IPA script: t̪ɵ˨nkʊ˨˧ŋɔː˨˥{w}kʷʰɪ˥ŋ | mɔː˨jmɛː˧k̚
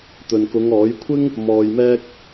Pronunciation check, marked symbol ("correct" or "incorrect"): incorrect